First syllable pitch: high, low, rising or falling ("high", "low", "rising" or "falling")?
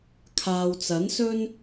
low